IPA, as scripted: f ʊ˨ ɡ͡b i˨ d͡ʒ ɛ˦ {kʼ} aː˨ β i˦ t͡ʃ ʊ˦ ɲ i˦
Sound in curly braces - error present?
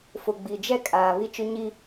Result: no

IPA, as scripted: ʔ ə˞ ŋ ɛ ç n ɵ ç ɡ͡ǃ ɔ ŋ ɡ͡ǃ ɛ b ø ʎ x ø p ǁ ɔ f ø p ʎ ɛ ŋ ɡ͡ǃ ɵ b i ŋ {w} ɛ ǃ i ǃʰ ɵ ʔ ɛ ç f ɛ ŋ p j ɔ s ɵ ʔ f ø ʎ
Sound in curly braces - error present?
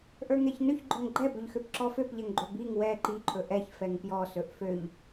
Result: no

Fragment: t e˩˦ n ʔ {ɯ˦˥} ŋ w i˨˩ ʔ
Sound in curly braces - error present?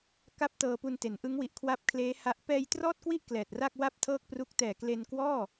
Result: no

